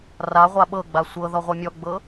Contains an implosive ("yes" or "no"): yes